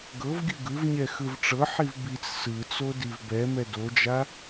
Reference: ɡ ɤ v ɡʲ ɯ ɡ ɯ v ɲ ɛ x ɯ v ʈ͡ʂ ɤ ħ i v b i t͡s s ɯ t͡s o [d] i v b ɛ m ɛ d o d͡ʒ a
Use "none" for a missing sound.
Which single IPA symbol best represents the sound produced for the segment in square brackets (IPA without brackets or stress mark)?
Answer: d